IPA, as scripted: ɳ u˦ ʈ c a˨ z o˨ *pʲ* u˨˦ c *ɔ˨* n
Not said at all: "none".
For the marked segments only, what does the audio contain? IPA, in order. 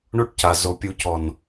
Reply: pʲ, ɔ˨

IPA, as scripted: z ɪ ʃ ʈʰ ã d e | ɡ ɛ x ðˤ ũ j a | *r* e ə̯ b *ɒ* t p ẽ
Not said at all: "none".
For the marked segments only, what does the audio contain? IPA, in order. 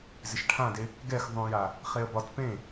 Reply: χ, ɒ

